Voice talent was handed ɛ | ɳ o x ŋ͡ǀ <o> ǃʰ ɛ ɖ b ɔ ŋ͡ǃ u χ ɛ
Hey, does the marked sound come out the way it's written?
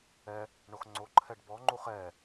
yes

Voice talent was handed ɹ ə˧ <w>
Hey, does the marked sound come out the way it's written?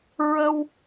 yes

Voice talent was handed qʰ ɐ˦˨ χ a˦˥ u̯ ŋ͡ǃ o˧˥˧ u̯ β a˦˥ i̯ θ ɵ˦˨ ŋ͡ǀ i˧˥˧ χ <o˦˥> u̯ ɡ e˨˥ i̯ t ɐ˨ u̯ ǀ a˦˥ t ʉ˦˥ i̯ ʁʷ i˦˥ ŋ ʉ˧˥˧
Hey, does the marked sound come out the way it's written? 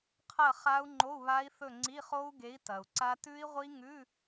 yes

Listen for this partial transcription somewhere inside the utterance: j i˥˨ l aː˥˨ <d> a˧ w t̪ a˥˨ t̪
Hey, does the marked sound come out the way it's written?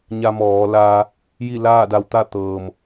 yes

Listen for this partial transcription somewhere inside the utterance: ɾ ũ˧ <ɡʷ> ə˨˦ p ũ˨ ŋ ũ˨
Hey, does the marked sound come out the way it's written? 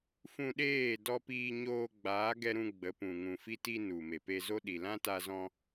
no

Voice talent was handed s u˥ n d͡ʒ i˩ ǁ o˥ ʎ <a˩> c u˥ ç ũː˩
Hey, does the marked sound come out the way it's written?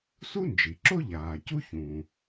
no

